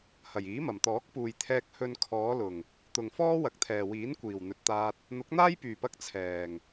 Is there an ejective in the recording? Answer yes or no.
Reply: no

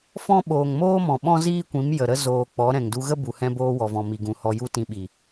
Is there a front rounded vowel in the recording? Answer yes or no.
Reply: no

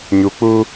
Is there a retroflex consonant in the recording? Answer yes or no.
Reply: no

